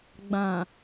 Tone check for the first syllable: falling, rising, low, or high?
low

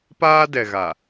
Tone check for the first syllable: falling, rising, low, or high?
high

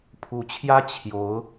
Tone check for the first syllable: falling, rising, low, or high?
rising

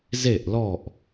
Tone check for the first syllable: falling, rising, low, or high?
falling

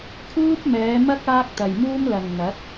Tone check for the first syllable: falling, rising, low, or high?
high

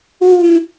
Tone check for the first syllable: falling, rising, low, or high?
high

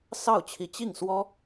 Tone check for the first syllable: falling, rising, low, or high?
falling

